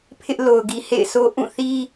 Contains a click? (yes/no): no